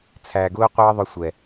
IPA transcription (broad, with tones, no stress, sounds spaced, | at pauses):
t͡sʰ æː˨ ɡ ʊː˦ qʷ ʌː˦ ðˤ ʊ˦ sʷ ɛ˨